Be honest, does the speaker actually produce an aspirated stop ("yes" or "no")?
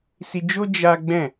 no